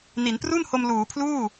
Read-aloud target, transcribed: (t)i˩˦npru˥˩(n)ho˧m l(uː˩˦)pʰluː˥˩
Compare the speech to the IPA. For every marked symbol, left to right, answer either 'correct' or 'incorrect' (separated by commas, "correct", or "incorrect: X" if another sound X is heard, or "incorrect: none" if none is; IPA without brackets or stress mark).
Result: incorrect: n, correct, correct